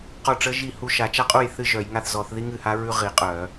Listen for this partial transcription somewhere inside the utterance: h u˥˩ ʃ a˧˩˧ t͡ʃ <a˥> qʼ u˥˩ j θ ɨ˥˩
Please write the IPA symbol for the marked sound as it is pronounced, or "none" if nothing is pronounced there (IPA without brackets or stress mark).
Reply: a˥